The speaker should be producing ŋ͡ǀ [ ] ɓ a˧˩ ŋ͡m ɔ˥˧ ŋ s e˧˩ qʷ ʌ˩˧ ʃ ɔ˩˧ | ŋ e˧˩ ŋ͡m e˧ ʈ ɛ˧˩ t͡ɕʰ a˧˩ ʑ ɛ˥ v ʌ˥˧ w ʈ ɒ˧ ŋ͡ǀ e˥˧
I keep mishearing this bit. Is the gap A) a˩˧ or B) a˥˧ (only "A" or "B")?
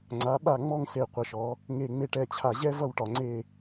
A